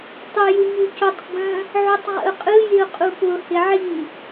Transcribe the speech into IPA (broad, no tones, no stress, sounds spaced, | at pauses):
tˤ ɯ j ɯ ɲ ʉ c ʊ tˤ ɡ͡b ə̃ | ʕ u tˤ ʁ ə̰ ʊ̯ qʼ ɯ j ɪ ʊ̯ qʼ u p ʊ h ɪ ʕ i